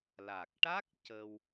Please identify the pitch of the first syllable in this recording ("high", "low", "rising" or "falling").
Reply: low